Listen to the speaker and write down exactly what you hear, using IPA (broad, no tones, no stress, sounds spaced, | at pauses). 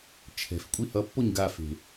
t͡ʃʰ ɛ̤ f kʷʼ i h ʌ pː o ɲ ɡ a f e̤